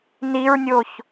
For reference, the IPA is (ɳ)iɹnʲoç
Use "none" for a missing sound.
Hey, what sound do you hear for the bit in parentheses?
n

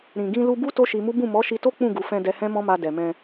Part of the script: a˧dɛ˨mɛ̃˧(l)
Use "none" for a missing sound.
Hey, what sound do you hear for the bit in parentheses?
none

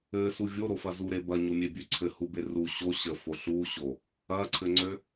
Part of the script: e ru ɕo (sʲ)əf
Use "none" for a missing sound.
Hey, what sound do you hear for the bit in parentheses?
ɕ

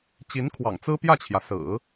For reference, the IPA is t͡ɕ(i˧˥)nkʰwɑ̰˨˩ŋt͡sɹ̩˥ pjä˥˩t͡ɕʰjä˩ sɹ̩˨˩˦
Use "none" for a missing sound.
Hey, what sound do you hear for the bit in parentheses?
i˧˥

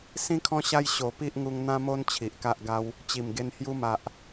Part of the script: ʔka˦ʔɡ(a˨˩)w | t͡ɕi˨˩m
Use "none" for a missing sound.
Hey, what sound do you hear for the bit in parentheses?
a˦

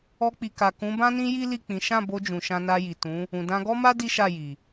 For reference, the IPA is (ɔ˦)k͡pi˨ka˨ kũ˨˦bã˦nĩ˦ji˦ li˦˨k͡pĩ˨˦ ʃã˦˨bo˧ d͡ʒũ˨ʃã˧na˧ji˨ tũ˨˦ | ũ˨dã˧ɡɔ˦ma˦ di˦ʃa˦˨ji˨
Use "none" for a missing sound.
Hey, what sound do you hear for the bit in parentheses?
ɔ˧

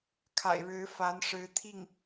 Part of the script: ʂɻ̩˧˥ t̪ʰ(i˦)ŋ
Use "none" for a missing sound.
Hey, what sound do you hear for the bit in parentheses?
i˥˩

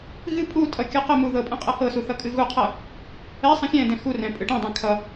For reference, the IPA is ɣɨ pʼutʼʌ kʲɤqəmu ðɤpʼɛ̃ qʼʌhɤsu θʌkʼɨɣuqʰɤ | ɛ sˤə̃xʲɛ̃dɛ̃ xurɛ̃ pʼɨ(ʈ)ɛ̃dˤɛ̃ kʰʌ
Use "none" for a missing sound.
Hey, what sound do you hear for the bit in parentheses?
ʈ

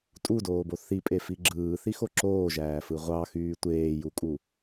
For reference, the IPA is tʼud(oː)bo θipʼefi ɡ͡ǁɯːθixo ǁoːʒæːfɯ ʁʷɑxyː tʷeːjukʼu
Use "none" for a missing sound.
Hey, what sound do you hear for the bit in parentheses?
oː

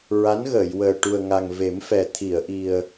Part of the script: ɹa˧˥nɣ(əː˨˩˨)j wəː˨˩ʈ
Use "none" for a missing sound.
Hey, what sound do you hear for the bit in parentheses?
əː˨˩˨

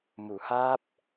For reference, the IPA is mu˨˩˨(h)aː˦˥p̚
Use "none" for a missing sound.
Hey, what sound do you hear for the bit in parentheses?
h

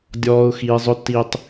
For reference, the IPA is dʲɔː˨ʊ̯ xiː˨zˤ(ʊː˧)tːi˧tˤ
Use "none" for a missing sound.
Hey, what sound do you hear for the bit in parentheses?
ʊ˧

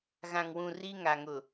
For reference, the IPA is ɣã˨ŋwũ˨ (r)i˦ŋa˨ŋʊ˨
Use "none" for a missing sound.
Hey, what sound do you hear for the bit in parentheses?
r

